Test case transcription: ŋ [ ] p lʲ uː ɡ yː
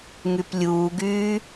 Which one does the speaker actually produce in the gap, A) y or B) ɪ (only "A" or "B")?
A